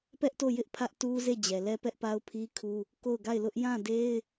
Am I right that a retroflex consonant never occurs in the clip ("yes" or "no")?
yes